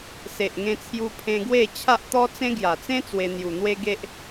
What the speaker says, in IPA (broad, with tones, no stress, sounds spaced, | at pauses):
s e˨ ʔ ŋ ẽ˧ t͡sʰ j u˧ pʰ ẽ˧ ɡ w e˥˧ t͡ɕʰ a˦ ʔ t̪ ɔ˦ t͡s ẽ˦ ɡ j a˨˩ t͡s ẽ˦ t͡s w e˧ n̪ j u˨˩ n̪ w e˦ ɡ e˦ ʔ